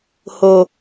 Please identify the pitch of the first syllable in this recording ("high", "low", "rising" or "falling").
low